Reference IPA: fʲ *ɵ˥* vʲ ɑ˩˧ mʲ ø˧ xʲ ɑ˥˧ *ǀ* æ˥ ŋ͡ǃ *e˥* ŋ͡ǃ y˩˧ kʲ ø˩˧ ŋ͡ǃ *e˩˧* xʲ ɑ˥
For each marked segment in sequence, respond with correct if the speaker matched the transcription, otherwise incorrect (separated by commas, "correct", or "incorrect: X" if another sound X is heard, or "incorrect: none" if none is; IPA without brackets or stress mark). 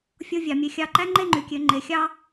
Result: incorrect: o˥, incorrect: ǃ, incorrect: e˥˧, correct